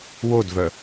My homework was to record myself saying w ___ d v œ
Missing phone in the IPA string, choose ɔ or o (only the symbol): o